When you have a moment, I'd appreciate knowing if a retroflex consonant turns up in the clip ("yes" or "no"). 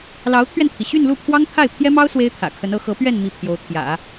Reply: no